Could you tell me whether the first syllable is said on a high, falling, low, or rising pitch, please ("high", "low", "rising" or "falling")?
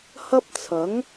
high